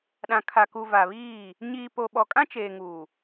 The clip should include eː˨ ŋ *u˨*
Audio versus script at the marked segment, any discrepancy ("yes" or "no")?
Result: yes